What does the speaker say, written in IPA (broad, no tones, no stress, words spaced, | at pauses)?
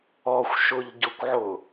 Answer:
ɔxʷʃʊʎɟʊkʷʕʊ